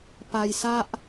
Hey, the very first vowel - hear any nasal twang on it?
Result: no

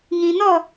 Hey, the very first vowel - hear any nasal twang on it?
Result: yes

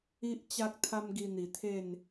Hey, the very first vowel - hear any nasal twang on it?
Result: no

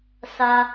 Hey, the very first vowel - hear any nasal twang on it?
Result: no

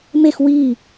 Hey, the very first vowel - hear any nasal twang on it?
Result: no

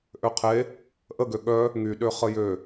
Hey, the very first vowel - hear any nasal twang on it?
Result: no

